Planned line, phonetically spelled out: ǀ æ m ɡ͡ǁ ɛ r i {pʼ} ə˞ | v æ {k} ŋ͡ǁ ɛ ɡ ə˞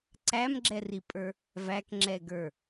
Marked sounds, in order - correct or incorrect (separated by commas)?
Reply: correct, correct